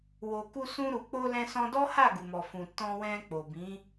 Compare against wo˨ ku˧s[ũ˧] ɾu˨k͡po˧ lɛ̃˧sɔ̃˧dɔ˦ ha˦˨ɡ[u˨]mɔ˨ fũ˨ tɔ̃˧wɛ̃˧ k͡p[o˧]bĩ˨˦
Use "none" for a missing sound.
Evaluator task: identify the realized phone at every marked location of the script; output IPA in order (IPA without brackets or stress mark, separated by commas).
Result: ũ˧, u˨, o˨